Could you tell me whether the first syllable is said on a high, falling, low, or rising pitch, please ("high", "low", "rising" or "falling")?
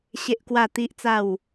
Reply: high